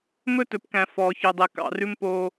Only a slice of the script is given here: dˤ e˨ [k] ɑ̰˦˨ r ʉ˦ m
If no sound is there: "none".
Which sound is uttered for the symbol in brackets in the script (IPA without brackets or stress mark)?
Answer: k